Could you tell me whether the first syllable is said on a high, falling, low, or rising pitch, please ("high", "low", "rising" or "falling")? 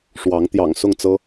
rising